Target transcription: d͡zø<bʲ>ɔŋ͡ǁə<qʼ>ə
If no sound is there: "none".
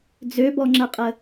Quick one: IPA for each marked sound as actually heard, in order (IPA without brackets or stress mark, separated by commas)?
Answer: b, qʼ